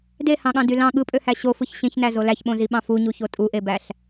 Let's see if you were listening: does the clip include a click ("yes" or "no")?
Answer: no